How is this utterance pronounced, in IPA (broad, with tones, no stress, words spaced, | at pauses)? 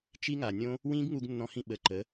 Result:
t͡ʃi˦ŋa˨nʲõ˦ | wĩː˦ɡŋu˧ɡnːɔ̃˧hĩ˧ ɓə˨ ǃə˨˦